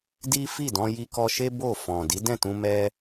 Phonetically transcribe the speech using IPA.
d i˦ f i˦˨ d ɔ̃˧ j i˧ k ɔ˧ ʃ e˦ b o˦˨ f ɔ̃˨ d i˨˦ d ɛ̃˦˨ t ũ˧ m ɛ˧

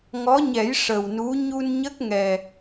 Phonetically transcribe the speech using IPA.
ŋ ɔ˧˥ ɲ ɛ˨˩˦ j ʂ ə˨˩ w n u˧˥ ɲ u˧ n ɲ ə˦˥ k̚ ŋ ɛ˨˩

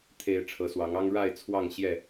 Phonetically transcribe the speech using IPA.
t̪ʰ e˨˦ ɪ̯ ʈ͡ʂʰ ɤ˨˦ s w ɑ˨˦ ŋ ɑ˦ ŋ ɻ a˥˨ ɪ̯ t͡sʰ w ɑ˥˨ ŋ ɕ j ɛ˥˨

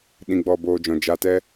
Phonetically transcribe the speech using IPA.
ɗ ĩ˧ ɡ͡b ɔ˧ b oː˧ d͡ʒ ɔ̃˨ d͡ʒ aː˧ t ɛ˦

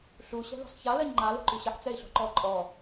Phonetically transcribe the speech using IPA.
ɬ u ɕ ɛ̤ ð ɔ̤ s ç a l ɜ ɲ ŋ͡ǃ a l ɛ̤ ǃ y ɕ ə ħ t͡s ɛ i̯ ɬ o̤ ǃ ɔ ǃʼ ɔ

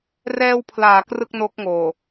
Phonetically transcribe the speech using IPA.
r ɛː˧ w pʰ l aː˩˦ k r ɯ˥˩ k̚ n o˦˥ k̚ ŋ oː˨˩

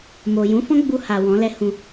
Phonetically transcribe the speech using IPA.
m o˨ j ũ˨˦ f ɔ̃˦ ɡ͡b u˧ h a˨ w ɔ̃˨˦ l ɛ˦ h ũ˧

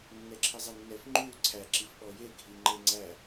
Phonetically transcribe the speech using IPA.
nː ɛ ǁʰ i zˤ e nː ɛ f ŋ͡ǃ y u̯ ǀʰ æ ǁ i f ɓ ɔ j e ɡʱ i ŋ͡ǃ e ŋ͡ǀ æ

